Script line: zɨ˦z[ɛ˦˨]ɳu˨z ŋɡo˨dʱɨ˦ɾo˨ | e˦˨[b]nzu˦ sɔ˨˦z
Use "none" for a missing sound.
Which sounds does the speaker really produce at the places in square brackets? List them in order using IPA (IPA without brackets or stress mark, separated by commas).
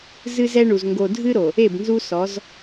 ɛ˦, b